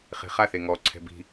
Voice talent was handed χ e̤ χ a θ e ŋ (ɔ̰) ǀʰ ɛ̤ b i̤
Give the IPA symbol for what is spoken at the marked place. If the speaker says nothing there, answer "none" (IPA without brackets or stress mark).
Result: ɔ